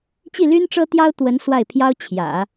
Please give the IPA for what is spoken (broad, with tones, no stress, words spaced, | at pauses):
t͡ɕi˥˩ly˥n ʈ͡ʂɤ˥t̪jɑ˥ʊ̯ t̪wə˧˥n swa˥˩ɪ̯pʰjɑ˥ʊ̯ t͡ɕʰjä̰˨˩˦